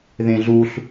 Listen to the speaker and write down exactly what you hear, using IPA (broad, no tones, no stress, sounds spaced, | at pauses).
ð ẽ ɮ u ɬ